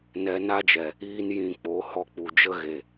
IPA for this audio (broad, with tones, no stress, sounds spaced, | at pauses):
n ɛ˧ n a˦ d͡ʒ ɛ˨ | iː˦ n j ĩ˧ k͡p o˨˦ h ɔ˧ k͡p u˨ d͡ʒ ə˦ ɣ e˨